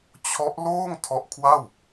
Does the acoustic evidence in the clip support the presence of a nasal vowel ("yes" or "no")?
no